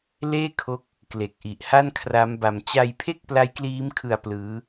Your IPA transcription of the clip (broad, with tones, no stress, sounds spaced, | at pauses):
l eː˥˩ kʰ o˦˥ k̚ | k l e˨˩ k̚ ʔ i˨˩ ʔ h a˥˩ n kʰ r a˦˥ m b a˧ m t͡ɕ a˧ j pʰ e˥˩ k̚ p l a˦˥ j k l iː˦˥ m kʰ ɯ˧ a̯ p l ɯː˦˥